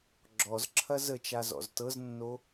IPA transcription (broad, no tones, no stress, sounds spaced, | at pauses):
ɡ͡ǁ ɔ z ǁʰ ɐ z ə t͡ʃ a z ɔ̰ z t ɤ z nː o